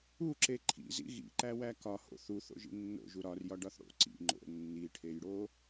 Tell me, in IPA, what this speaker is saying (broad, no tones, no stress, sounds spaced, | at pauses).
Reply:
u ǁ e ǃʰ ḭ z ḭ ɣ ḭ ǃ æ w æ k ɒ h o̰ θ u θ o̰ ʒ ḭ nː o̰ ʒ u ɾ ɒ r j ɒ ɖ ɒ θ ɽ o̰ ǀ ḭ ŋ͡ǃ o̰ nː i ʈʰ e j ɽ o